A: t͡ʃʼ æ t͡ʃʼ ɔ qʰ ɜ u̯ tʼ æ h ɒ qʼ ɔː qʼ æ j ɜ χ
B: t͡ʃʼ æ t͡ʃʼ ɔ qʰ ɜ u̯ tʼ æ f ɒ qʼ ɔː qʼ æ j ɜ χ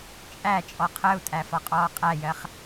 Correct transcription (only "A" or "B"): B